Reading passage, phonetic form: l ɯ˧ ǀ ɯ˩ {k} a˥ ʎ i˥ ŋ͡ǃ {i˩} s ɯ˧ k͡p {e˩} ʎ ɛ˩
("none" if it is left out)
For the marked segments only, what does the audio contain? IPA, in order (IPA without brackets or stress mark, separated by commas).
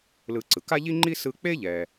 k, i˥, e˥